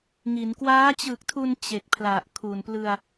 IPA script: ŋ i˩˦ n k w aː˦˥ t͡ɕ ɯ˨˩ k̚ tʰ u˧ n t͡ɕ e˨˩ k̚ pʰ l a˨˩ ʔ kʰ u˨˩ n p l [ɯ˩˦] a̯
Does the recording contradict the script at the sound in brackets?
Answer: yes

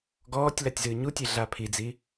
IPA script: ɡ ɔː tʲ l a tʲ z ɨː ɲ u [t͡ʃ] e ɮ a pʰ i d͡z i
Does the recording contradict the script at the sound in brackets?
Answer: yes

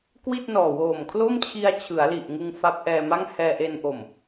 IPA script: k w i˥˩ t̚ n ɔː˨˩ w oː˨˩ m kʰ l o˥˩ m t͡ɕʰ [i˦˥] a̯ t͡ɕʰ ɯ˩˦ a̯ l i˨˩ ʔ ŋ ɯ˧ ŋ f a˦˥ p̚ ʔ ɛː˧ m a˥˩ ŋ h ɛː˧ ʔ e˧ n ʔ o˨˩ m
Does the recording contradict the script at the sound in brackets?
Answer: yes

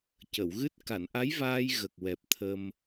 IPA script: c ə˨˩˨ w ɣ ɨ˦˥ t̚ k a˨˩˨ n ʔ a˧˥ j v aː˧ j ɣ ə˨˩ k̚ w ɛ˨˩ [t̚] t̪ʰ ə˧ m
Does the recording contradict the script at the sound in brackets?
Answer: yes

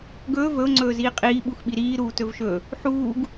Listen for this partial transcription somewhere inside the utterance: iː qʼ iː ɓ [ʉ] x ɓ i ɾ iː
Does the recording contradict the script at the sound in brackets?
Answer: yes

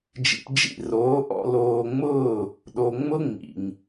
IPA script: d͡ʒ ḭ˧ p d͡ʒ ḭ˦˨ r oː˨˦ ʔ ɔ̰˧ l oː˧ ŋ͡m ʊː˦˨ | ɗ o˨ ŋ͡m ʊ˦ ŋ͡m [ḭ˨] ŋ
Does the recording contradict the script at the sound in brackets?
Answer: no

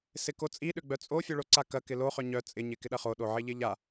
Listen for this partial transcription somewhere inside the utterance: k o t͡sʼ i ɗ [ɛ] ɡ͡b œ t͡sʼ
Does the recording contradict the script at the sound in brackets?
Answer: yes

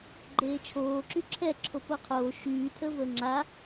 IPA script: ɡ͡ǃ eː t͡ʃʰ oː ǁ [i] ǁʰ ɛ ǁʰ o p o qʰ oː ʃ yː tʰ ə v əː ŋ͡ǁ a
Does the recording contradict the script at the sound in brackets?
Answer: yes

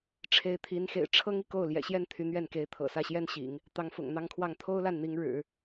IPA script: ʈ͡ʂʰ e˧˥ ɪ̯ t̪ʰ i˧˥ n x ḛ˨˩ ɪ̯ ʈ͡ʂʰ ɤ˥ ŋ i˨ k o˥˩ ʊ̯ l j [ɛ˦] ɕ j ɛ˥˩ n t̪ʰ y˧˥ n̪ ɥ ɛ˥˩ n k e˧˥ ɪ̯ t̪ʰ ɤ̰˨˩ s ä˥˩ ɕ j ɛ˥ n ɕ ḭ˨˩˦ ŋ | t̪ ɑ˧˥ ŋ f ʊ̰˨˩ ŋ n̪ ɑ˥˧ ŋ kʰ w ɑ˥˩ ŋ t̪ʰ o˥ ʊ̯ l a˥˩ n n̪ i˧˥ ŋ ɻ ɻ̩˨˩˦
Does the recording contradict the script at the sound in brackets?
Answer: yes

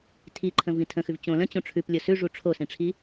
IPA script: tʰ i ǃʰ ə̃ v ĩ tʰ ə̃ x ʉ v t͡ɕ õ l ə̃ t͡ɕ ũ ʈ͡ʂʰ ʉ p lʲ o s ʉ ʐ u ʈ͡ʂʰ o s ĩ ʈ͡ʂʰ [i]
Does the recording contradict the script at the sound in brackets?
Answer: no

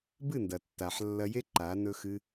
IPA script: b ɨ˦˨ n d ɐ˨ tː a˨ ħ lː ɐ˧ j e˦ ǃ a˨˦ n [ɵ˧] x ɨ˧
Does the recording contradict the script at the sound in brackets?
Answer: no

